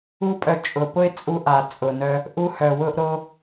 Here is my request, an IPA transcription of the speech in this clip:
u˦pʼœ˧ t͡ʃʼʊ˨pʊ˦ɪ̯t͡sʼu˧ʔa˨ t͡sʼʊ˨nœ˧ | ʔu˧hœ˨wʊ˧ʔ ɾo˧

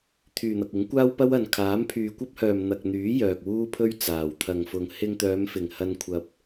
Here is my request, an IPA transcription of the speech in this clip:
t̪ʰyː˨n̪ɐ˨k̚ ɪ˨˥ŋkʷaː˥wpɐ˥wɐ˨n kʰaː˨˥mpʰyː˨kʷɐ˥p̚hœː˨m n̪ɐ˨k̚n̪yː˨˥ jœː˨k̚wuː˥pʰɵ˥ɥ t͡saː˨˩wt̪ʰɐ˨ŋfʊ˨ŋ hɪ˧ŋt̪œː˨˧mfɪ˨˩ŋ hɐ˧nkʷʰɐ˨p̚

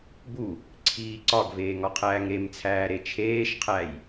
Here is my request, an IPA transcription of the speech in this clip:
bu | ǀʰiːǀɒɡveː ŋɒqʰæːŋɾemt͡sʰæː ɾet͡ʃʰeːʃqʰæj

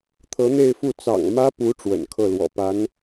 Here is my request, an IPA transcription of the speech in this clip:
t̪ʰɤ˧˥n̪e˥˧ɪ̯fu˥˩ t͡sɑ̰˨˩ŋmä˥pu˧˥ ʈ͡ʂwə̰˨˩nkʰɤ˥˩lwɔ̰˨˩pa˧˥n

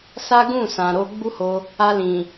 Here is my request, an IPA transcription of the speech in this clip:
sa˦ɡũ˦˨sã˨ɾo˧ ɡ͡bu˦ho˧ | a˧lĩ˨

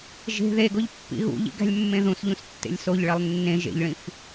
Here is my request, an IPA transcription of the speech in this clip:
ʒe̤ ðeɡoʎpːḭ ɣṵʎḭɡæ̤lʲmːẽ ðũsʎũstːḛlʲ soʎɭelˠ nːẽ ʒḛʎɭĩf

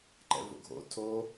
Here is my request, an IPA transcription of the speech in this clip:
ǃɛ̰vo̰ɡʱo̰ tʰo

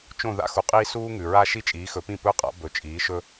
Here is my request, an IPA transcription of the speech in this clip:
t͡ʃõ˥˩ ða̰˧ xu˩qʼiː˥ suː˥ŋʉ˩ ɹa˥ ʃi˥t͡ʃʼiː˩˥xɵ˩˥pĩ˥˩ pɵ˥˩qʼa̰˩˥ bɵ˩˥t͡ʃʼiː˩˥ʃɵ˥

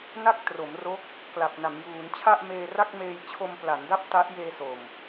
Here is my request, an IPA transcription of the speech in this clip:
na˥˩k̚tro˩˦mro˦˥k̚ | kla˨˩p̚na˩˦mjuː˩˦n t͡ɕʰa˥˩ʔmeː˧ra˥˩k̚meː˧j t͡ɕʰo˧mpla˩˦nda˥˩p̚ ta˦˥ʔjeː˧ so˨˩m

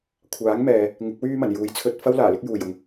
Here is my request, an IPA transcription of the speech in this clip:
kʷʰaː˨˥ŋmɛː˨ | ŋɪ˨˥k̚wyː˥mɐ˨˩n juː˨˥jt͡sʰɵ˧t̚ fɐ˥w laː˨˩lɪ˥k̚juː˨˩jʊ˨ŋ

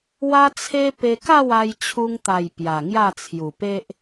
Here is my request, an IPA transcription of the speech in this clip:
wa˧t͡sʰe˧ pe˧ka˥˧wa˧j t͡ɕʰu˧ŋt̪a˨˩j pja˨˩ŋja˥˧t͡sʰju˨˩pe˦ʔ

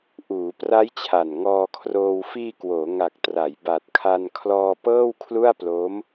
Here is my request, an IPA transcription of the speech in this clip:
ʔuː˩˦pra˦˥j t͡ɕʰa˨˩nŋɔː˧kʰroː˧w fiː˧kwoː˩˦ ŋa˨˩k̚tra˩˦j ba˨˩t̚kʰa˧nkʰlɔː˧ pɤː˥˩wkʰlu˥˩a̯ploː˦˥m

